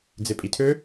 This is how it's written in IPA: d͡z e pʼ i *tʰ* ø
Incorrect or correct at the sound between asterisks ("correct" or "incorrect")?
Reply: correct